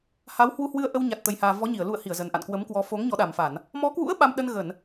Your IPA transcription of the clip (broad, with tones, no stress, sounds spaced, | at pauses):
h a˨˦ w h w u˧ h w ɨ˧ ə̯ ʔ ə˧ w ɲ a˨˩ t̚ t̪ ə˨˩ j h aː˨˩ v ɔ˨˦ ɲ i˧˩ ə̯ l ṵ˧˨ ə̯ h i˧˩ ə̯ z ə˨˩ n ʔ a̰˧˨ n k w ə˨˦ m k w ɔ˨˦ f o˨˦ ŋ ɲ ɔ˨˦ ɗ a˨˩ m f a˧˩˨ n | m ɔ˨˦ k w ṵ˧˥ ə̯ ɓ a˧ m ɗ ə˧ n ɣ ə˧˩˨ n